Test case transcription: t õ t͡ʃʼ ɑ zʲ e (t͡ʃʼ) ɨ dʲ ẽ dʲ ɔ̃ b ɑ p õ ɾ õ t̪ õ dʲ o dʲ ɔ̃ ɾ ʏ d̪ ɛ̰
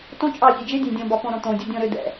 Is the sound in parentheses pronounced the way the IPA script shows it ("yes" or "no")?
no